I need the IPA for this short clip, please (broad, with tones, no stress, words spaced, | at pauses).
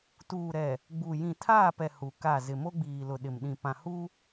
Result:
tuː˨ɾɛ˨ | ɡ͡bu˨ jĩ˨tʰaː˦˨pɛ˨ hu˨ka˦˨ zɪ˨mo˦ɡ͡biː˨lʊ˨ ɗɪ˨mɗĩ˨pã˨ hu˦